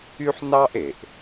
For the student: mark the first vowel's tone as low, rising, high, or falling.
high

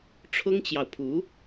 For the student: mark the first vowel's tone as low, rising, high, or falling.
high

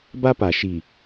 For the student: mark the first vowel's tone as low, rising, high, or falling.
high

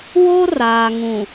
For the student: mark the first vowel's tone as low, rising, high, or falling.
high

